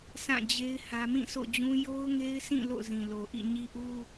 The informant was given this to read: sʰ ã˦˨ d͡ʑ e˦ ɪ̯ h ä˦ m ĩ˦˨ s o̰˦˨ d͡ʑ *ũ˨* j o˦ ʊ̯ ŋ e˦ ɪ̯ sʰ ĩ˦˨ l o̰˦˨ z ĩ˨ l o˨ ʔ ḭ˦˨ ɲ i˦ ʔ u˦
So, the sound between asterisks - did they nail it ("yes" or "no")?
no